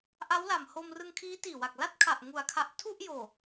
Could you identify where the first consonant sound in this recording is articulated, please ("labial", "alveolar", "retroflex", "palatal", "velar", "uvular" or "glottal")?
glottal